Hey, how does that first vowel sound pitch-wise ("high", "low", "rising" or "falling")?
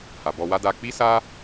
low